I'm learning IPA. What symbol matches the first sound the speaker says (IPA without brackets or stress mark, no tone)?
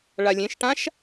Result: ɭ